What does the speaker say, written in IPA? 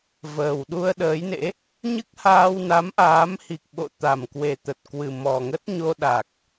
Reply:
vəː˨˩wɗu˧ə̯ɗəː˨˦jnḛ˧˥ | ɲɨ˦˥k̚haː˧w na˨˦mʔaː˨˦mhi˨˩k̚ɓo̰˧˨ t̪a˨˩mkwe˨˩t̪ə˨˩t̚ kwɨ˨˩mɔ˨˩ŋə˦˥t̚ɲo˧ ɗa˨˩k̚

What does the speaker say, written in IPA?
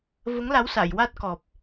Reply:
və˧˥ŋla˧˥w sa˨˩˨jwa˦˥t̚kɔ˨˩p̚

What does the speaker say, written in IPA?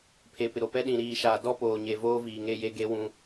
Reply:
pʰe˨pɪ˨ɾo˨ pɛ˦ɗĩ˨ ɾiː˨ʃaː˨dɔ˦poː˨ ɲe˨ voː˦viː˨ŋe˦je˦ ɡe˦ wũ˦

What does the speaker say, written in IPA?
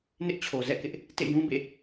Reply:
nɪ˦ʔt͡ɕʰo˨ zɛ̰˦˨kɪ˦ʔ | tḛ˦˨jũ˦bḛ˦˨

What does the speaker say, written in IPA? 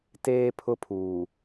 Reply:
teː˦ pʰʊ˦pʰuː˨

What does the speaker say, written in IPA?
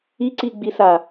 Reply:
iǀiɡ͡bisa

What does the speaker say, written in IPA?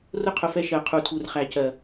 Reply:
rʊ˦qʰʊ˨fɛ˦ ʃɜ˨qʰu˨tʰu˨r χæ˨cɜ˨

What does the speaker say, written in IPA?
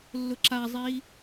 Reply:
lːʊǁazˤi

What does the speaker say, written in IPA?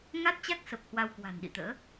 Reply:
ŋa˦˥t̚t͡ɕa˦˥k̚sə˨˩p̚ hwa˧wkwa̤˨˩nɗḭ˧˨t̪ə̰ː˧˥

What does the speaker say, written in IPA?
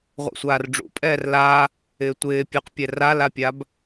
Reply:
ʁʷɛ̰sʷaːrɖ͡ʐṵpʼɛːr la | ɪːtʷɪː pʲʉqpʲɛ ralapʲab

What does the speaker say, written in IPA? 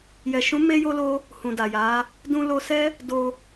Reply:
jɛ˨ʃũ˨˦ me˦jo˦lo˦ | hũ˨da˨ja˨˦ | dũ˧ lo˧ sɛ˦ | do˧

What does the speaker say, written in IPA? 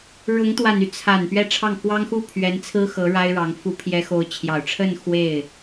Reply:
ɻʊ˧˥ŋt̪wa˨˩ny˦ t͡sʰa˨˩n pɥɛ˥˧ʈ͡ʂʰɑ˥˩ŋ kwɑ˥ŋxu˥˩ pʰɥɛ˧˥nt͡sʰɹ̩˥ xɤ˧˥ɻa˥ɪ̯ɻɑ˧˥ŋ fu˧˥pʰjɛ˧˥xo˧˥ʊ̯ t͡ɕʰjɑ˨˩ʊ̯ʈ͡ʂʰə˥˧n xwe˥˩ɪ̯

